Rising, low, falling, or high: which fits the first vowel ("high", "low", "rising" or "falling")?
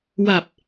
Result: low